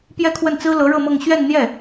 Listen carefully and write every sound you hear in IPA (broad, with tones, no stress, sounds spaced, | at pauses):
p j ɛ˥˧ kʰ w ə˥˩ n t͡s ɹ̩˥ l ɤ˧˥ ɻ ɤ˥˧ m ɤ˥˧ ŋ ɕ ɥ ɛ˥˧ n n̪ j ɛ˥˩